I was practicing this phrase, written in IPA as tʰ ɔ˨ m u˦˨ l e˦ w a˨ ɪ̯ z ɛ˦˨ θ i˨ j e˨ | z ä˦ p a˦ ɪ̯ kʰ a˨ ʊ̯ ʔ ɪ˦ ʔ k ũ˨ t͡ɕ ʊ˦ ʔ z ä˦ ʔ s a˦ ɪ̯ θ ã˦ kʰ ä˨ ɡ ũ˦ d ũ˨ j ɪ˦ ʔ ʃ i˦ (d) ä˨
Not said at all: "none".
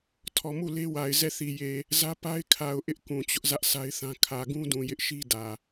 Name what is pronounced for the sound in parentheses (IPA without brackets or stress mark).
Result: d